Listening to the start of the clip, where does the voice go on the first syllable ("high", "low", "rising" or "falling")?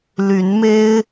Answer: rising